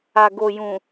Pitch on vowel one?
low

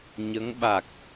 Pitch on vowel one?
rising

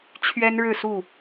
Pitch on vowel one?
high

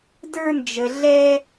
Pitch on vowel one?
high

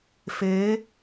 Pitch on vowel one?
rising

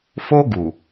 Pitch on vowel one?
high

